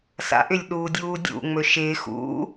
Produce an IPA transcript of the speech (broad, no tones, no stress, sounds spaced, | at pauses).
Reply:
s a̰ ʔ ʏ lʲ ɗ uː dʲ uː dʲ ṵ ŋ͡m ɵ ʃ ɪː x ṵ